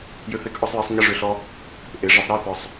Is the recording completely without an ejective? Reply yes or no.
yes